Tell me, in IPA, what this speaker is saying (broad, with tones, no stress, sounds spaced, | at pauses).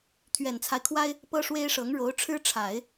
t̪ʰ ɥ ɛ˨˩ n t͡sʰ a˦ ɪ̯ kʰ w a˥ ɪ̯ | p ɤ˥ ʂ w e˥ ɪ̯ ʂ ɤ˧˥ ŋ ɻ o˧˥ ʊ̯ ʈ͡ʂʰ ɻ̩˥ ʈ͡ʂʰ a˨˩˦ ɪ̯